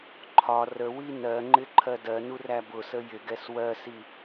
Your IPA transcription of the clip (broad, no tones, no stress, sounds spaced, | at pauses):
ǃʰ ɒ r ə w i n ɜ ŋ͡ǃ ɪ ǃʰ ɜ d ɜ n u r æ b ʊ s ə j ɪ ɡ ɛ s w ɜ s i